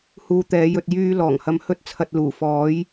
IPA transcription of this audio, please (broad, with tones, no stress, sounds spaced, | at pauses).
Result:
h uː˧ t̪ ɛː˨˥ j ɵ˧ t̚ j yː˧ l ɔː˨˩ ŋ h ɐ˧ m h ɵ˥ t̚ t͡sʰ ɐ˧ t̚ l uː˨˩ f ɔː˨˥ j